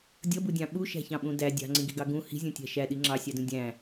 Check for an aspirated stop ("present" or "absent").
absent